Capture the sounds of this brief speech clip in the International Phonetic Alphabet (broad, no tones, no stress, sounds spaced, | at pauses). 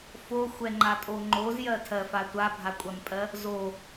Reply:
f o xʷ ɛ ŋ͡ǃ a tʼ o ŋ͡ǃ o z j ɜ tʰ ɜ f a tʷ a bʱ a kʷʼ a m pʼ ɜ | z o